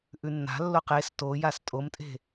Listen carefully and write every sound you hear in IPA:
ʔ ʉ nː a̤ lː o q e s t o j a s tʼ o m tʼ e̤

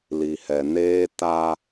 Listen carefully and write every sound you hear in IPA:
l i˨ h ɛ˨ n eː˦ t a˦

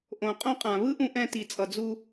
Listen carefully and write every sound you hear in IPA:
ʔ õ˨ qʼ õ˦ qʼ ã˨ β ɯ˦ ʔ ũ˧ ʔ ɛ̃˧ t i˨ t͡sʼ ʌ˨ d͡z u˧

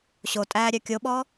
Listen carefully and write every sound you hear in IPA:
ɕ o tʼ æː ɾʲ œ kʲ o ɓ ɔ

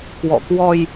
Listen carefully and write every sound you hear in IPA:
k w ɔ̰˧˨ k w ɔ˧ j

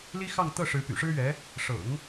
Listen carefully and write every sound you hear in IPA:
l i˥ x ɑ˥˧ ŋ t̪ ɤ˥˩ ʂ ɻ̩˧˥ p y̰˨˩ ʂ ɻ̩˥ ɥ ɛ˧˥ | ʂ ɤ̰˨˩˦ ŋ

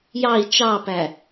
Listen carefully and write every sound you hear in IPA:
j ɑ i̯ t͡ʃ ɑ p æ

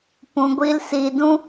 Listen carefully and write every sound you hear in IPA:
p ũ˨ ɡʷ i˧ l s i˨ d ũ˦

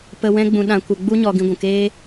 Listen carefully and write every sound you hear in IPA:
p ə˧ w ɛ̃˦ ɡ͡b ũ˧ ɗ ã˧ kʷ ə˧ ɡ͡b u˦ ɲ ɔ˧ ɡ ĩ˧ ɡʷ ũ˨ k eː˦

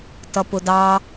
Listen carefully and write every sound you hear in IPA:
t ʌ p ʊ d ɑ

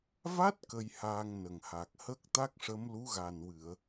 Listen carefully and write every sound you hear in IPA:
v a˦˥ t̚ k ə˧ j h aː˧ ŋ n ə˨˩ ŋ h a˨˩ k̚ h ə˦˥ k̚ t̪ a˦˥ k̚ ʂ ə˧˥ m l u˧˥ ɣ a˨˩ n w ɨ˨˩˨ ə̯

